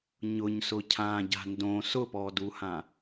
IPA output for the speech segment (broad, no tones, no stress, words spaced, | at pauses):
ɲʊɲ sʊcʰã ɟa̤ndõ sʊpɔduhã